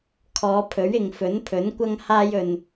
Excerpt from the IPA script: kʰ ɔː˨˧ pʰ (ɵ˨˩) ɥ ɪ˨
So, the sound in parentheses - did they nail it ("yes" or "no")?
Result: no